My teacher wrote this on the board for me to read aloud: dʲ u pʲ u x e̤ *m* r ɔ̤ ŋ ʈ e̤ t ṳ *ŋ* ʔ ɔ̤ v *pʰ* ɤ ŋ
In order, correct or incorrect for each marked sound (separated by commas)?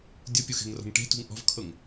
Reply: incorrect, correct, incorrect